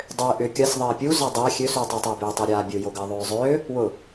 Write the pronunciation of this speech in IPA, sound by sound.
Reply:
dˤʏː ʔʏ kʲɐs ðˤɐːpʲu zɔdˤɛ xʲøsutˤatˤɛ bʏːtˤoɾʲaːbʲʊ joɡɐːðˤøːzˤøː | wʊ

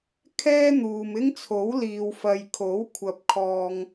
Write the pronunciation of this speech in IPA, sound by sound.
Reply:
kʰɛː˥n̪uː˨mɪ˥ŋt͡sʰo˨˥w liː˨wfɐ˨jkʰo˨˥w kʷʰɐ˨˥p̚kʰɔː˨ŋ

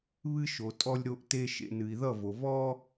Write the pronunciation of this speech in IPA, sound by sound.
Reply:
βɨ˦ʃo˨ tʼɔ˧lʲɾo˧ʔte˧ ʃḛ˨ nɨ˨i̯ðʌ˦˨vo˨ vɔ˦

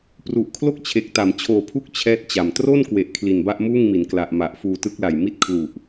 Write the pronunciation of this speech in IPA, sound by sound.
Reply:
pru˨˩ʔ kʰlo˥˩k̚t͡ɕʰe˨˩k̚ta˩˦m t͡ɕʰoː˨˩pʰu˦˥k̚ t͡ɕʰɛː˥˩t̚t͡ɕa˨˩m tro˥˩nkwe˨˩ʔ kʰli˨˩nba˥˩ʔmuː˥˩ŋmi˩˦n kla˨˩ʔma˨˩ʔ fuː˧tɯ˦˥k̚la˨˩j mi˥˩t̚kʰlu˨˩ʔ

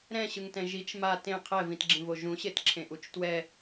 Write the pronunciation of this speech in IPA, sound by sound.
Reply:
ɾɛ̃ɕɯŋtɛ̃ ʒit͡ʃ ma tẽ qʰɛvĩtɡ͡ǁĩvo ʒũɕetǁʰẽʔut͡ʃ twɛ

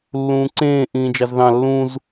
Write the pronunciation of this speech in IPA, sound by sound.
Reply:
lːũːǀẽː ʔĩːd͡ʒɑzðɑ̃ lːũz

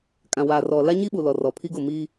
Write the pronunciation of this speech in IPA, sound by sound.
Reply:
kʼã˨waː˨ rɔ˨ la˦ɲi˦ɓu˨ lɔ˨rɔ˨pʰi˦ɡʊ˦˨ mi˦

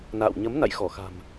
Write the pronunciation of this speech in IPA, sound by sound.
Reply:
na̰ː˧˨wɲə˨˦mna̰˧˨j xɔ˧˩xa̤˨˩m

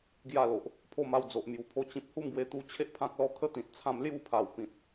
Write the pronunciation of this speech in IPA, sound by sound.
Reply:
ɡja˥˧lo˨ʔ | pʰo˥˧ma˥˧w d͡zo˨ʔmju˨˩pʰo˧ t͡ɕĩ˨p̚hu˥˧mɡwe˧t̪u˧ t͡ɕʰe˦ʔpʰã˦k̚lɔ˥˧ kʰə˦ t̪ĩ˨t̚ t͡sʰã˧mlju˥˧pʰa˨˩w pĩ˨t̚

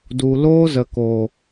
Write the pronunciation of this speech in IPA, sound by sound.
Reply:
du˨loː˦zə˨koː˨

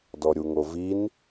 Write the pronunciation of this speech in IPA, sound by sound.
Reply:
dɔɾʲuŋovin

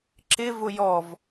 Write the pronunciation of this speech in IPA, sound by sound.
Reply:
ǁɪ vʊjɔv

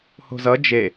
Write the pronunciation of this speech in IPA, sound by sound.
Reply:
ho̤zʌ d͡ʒe

